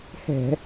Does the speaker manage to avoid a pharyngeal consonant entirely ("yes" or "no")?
yes